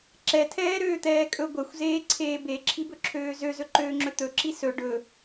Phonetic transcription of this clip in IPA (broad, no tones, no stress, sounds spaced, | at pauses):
ǁ ɛ tʰ ɛː ɾ øː t̪ ɛː kʼ ɵ ɡʷ ɛ xʷ z eː ǀʰ eː b e ǁʰ i b ɵ ǁʰ øː z ø z ɵ ǃ øː ŋ͡ǁ ɵ t̪ ɵ ǁ i s ɵ ɖ ɵ